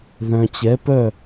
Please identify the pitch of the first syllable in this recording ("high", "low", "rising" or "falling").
low